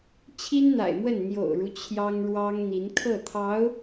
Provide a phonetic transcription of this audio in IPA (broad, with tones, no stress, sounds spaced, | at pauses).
t͡ɕʰ i˥ n n̪ a̰˨˩ ɪ̯ m w ə˥˩ n n̪ j o̰˨˩ ʊ̯ ɻ u˦ t͡ɕʰ j ɑ˥ ŋ ɻ w ɑ˥ ŋ n̪ i˧˥ n kʰ ɤ˥˩ t̪ʰ ɑ˧˥ ʊ̯